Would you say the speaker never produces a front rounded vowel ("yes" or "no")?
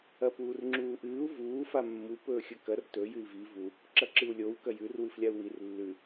yes